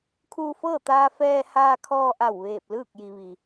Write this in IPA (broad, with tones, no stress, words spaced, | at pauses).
kʰuː˧fɤː˥˨t̪aː˧ fɛː˧ haː˧kʰɔː˧ʔa˧˩w ʋeː˧˩p̚lɯː˥˨k̚ji˩ ʋi˩